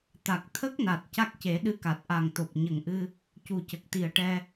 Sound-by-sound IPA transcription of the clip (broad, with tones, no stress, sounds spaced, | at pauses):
t̪ a˨˩ k̚ t̪ʰ ə˦˥ k̚ n a˨˩ t̚ c a˦˥ k̚ c e˨˩˦ ɗ ɨ˧˥ k a˨˩ t̚ ʔ a˨˩ ŋ t̪ o˨˩ p̚ ɲ ə˨˩ ŋ ʔ ɨ˧ | c u˨˩ c ə˨˩ k̚ t̪ i˨˩ ə̯ ʈ ɛ˧